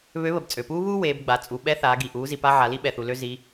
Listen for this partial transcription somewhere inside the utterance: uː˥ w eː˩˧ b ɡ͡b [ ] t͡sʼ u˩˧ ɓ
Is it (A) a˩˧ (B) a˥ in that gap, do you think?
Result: A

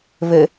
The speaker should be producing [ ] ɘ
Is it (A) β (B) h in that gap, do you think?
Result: A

